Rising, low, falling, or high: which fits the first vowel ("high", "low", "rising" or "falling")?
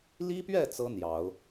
high